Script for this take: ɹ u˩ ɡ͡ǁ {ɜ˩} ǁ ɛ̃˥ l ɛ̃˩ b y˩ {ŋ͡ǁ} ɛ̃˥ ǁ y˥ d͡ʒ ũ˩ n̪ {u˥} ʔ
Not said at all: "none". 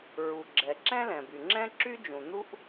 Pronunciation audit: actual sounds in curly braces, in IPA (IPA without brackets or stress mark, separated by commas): ɛ˩, ŋ͡ǁ, u˥